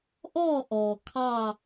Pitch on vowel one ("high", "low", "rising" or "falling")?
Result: falling